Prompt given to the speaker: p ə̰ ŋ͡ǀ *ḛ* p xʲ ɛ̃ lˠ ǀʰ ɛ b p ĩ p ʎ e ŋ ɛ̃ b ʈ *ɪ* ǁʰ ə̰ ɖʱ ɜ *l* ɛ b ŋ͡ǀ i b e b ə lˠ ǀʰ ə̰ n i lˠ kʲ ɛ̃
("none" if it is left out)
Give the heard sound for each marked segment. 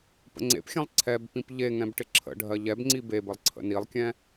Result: ḛ, ɪ, ʎ

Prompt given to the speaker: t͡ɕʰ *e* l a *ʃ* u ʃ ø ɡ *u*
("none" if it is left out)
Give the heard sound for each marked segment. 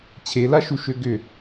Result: e, ʃ, ʏ

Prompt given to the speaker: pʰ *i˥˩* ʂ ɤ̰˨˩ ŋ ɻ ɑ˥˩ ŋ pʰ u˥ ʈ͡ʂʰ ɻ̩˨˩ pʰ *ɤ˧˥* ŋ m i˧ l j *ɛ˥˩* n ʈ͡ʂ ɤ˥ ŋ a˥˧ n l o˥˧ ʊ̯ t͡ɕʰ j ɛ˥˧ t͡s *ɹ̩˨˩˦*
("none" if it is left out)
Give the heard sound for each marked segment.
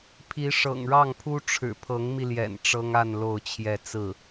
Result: i˧˥, ɤ˧˥, ɛ̰˨˩, ɹ̩˥˩

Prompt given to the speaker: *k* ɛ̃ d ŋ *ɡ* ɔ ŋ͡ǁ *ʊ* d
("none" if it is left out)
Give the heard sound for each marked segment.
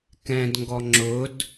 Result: k, ɡ, ʊ

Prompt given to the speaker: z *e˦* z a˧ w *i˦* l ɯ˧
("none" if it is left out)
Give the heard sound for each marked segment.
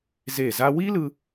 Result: e˦˨, i˦

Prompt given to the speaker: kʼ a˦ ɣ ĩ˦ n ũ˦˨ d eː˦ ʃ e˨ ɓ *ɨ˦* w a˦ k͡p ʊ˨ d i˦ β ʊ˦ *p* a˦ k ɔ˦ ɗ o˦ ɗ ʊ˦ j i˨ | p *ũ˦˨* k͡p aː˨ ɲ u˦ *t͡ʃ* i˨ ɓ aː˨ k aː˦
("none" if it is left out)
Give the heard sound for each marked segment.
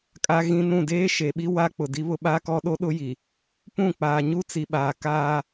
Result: i˦, ɓ, ũ˦˨, t͡s

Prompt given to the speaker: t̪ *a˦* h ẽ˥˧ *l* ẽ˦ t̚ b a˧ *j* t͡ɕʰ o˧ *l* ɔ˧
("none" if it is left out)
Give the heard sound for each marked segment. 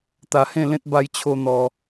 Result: a˧, l, j, n̪

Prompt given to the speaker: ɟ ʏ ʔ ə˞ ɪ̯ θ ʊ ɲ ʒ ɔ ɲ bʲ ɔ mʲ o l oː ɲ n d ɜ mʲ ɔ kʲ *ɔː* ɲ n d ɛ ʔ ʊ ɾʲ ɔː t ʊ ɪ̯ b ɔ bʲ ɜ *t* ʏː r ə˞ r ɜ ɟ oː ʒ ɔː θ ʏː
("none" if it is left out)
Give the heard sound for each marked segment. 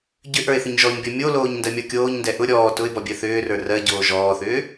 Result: oː, θ

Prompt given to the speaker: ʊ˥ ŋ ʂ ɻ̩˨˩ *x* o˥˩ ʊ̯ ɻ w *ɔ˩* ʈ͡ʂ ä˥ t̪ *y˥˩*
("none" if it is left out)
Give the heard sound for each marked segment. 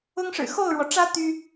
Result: x, ɔ˩, y˥

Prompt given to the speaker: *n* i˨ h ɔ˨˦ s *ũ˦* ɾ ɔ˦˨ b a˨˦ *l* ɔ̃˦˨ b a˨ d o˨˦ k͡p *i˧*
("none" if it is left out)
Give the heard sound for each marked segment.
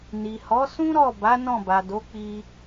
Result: n, ũ˦, n, i˧

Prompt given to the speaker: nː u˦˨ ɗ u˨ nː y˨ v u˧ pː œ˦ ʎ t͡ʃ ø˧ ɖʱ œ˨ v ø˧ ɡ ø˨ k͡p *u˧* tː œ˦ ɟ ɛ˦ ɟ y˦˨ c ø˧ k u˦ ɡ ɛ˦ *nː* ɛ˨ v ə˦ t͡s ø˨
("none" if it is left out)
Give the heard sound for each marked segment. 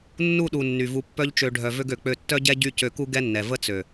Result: ø˧, nː

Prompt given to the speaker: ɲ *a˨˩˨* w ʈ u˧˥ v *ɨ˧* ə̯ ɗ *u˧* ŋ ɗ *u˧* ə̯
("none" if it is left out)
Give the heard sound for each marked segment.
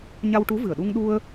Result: a˧, ɨ˨˩, u˧, u˧

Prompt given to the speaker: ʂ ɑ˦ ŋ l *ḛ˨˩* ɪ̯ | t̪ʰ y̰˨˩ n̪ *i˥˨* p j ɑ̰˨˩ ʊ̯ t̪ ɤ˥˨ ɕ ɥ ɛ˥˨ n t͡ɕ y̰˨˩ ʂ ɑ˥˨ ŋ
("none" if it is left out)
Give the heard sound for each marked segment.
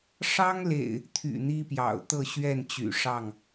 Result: ḛ˨˩, i˦

